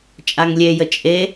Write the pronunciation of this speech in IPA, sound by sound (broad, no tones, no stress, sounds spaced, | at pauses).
t͡ʃʼ a ŋ lʲ e j ə t͡ʃʼ e